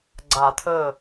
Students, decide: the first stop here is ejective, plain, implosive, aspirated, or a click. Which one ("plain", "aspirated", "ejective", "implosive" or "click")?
click